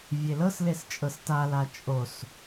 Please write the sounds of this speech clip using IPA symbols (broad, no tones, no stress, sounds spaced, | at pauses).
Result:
vʲ e l ɤ s l e s t͡ʃʼ ɤ s t a l a t͡ʃʼ o s